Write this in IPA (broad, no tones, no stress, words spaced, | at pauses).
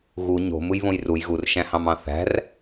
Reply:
ɣu ɲo̤ mɯjβõjruj ɣurʃæ̃hɑ̃mɑ̃ θæ̤r